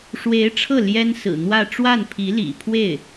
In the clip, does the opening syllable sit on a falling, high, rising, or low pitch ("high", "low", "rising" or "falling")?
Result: rising